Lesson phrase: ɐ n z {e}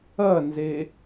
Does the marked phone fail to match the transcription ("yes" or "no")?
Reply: no